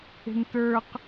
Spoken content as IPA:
e̤ntə˞q

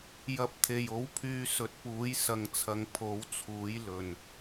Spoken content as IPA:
jɐ˨˥p̚t̪ʰe˨˩jo˨˥wpʰyː˨˧ sɵ˨˥t̚puː˨˥j sɐ˨ŋt͡sʰɐ˨ŋ pʰo˨˥wt͡sʰuː˨˥j lɵ˨˩n

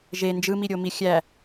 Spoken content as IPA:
ʒe nd͡ʒɯmiɾʲomi xʲæ

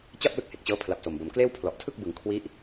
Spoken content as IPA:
t͡ɕa˥˩p̚lɯ˦˥k̚ he˨˩k̚t͡ɕɤː˦˥pʰla˨˩p̚ so˨˩mbo˨˩mkleː˥˩w pʰlɔ˨˩ʔtʰɯ˥˩k̚ bɯ˩˦ŋ kʰwi˦˥ʔ

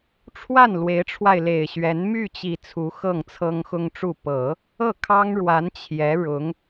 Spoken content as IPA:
ʈ͡ʂʰwa˥˩n lwe˧˥ɪ̯ʈ͡ʂʰwa˧ɪ̯le˨˩ɪ̯ɕɥɛ˧˥n my˥˩t͡ɕi˨˩ t͡sʰu˧˥ xɤ˥˩ŋt͡sʰɤ˥ŋxʊ˥ŋʈ͡ʂu˥˩ pɤ˨˩˦ | ɤ˥˩kʰɑ˥ŋɻwa˧˥n t͡ɕʰjɛ˧˥ ɻʊ˧˥ŋ

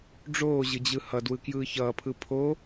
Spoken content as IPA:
ɖ͡ʐoːʑɯd͡ʑɯ hʌdwɯkjɯː çʌːpʰɯ pʰo

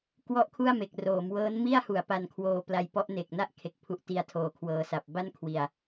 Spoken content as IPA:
kwɔ˥˩ʔkʰu˥˩a̯me˨˩k̚ roː˩˦m wɤː˦˥nmi˥˩a̯hu˩˦a̯ pa˧nkʰwoː˧ pla˧jpɔ˦˥ʔne˨˩k̚na˥˩ʔ kʰe˨˩k̚ pʰu˨˩ʔti˨˩a̯tʰoː˩˦ kʰwɤː˧sa˨˩p̚ ba˥˩nkʰwi˨˩a̯

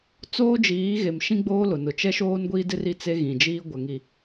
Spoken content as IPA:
t͡soː˦d͡ʒiː˨˦ɣe˨mʃĩ˦ ɡ͡boː˦lʊ˨ nʊ˨t͡ʃɛ˦ʃoː˦n ɡʷiː˦dɪ˦r i˦t͡se˦ɣĩ˨d͡ʒiː˦ ɡʷɛ˨ŋi˨

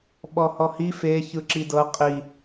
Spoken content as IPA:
ɓɔhɔhi fe çɯǁidɤ qʼi

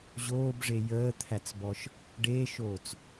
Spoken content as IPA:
ʑoːbʐe jəːt̪ʰæt͡sbɔʃ | ɖeːʃoːt͡s

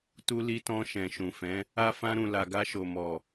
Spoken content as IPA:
tu˧li˧tɔ̃˧ ʃɛ̃˨ʃũ˨fɛ̃˨˦ | a˦ fã˧ɾũ˨la˨ɡa˧ ʃo˨mɔ˨

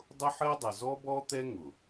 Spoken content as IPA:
dˤʊ˦ħɜ˦dˤʌ˨ zɔ˦bɔ˦t̪ɛ˦ ŋʊ˨

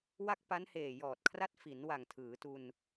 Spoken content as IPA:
wa˥˩k̚pa˦˥n heː˨˩jɔː˨˩t̚kʰra˦˥t̚fi˩˦n wa˨˩ŋtʰɯː˩˦tu˧n

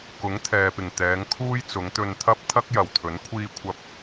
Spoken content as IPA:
kʊ˨˥ŋt̪ʰɛː˨pɪ˨˩ŋ t̪ɛː˨˧ŋkʰuː˥j t͡sʊ˨˧ŋt̪ɵ˧nt̪ʰɐ˥p̚ t̪ʰɐ˥k̚jɐ˨wt̪ʰɵ˨˥n kʷʰiː˥kʷʰɐ˥p̚

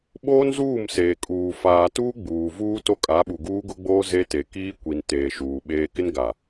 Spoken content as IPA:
ɓoː˦nzuː˦˨mseː˨ kʼuː˨ faː˨tuː˦ ɡ͡buː˨ vuː˦to˦ kʼa˨˦ɓu˨ ɡuː˦ɡʊ˦ɡ͡boː˦ ze˦te˨ kiː˦kʷi˨n teː˨ʃuː˨ ɓeː˦ kɪ˦nɡa˨

